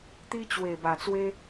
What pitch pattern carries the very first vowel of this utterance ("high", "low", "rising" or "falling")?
high